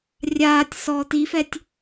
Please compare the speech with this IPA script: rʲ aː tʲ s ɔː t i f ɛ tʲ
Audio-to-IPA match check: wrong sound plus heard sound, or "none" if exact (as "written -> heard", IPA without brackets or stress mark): none